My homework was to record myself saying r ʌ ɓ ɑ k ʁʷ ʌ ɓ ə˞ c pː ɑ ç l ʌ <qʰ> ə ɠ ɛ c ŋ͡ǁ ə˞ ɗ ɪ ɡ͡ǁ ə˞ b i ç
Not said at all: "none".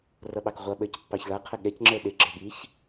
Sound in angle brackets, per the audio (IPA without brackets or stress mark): qʰ